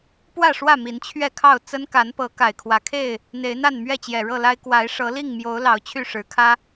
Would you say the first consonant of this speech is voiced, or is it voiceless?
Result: voiceless